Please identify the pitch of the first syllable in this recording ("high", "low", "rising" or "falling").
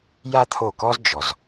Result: high